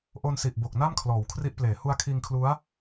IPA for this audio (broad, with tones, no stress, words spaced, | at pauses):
ʔo˧nsi˨˩ʔ bo˨˩k̚na˥˩mkʰlɔː˩˦w kʰri˦˥ʔpleː˩˦ hu˦˥a̯kʰiː˧ŋkʰlu˦˥a̯